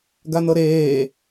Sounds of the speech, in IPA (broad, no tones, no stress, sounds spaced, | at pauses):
ɡ a n̪ ɤ ɾ eː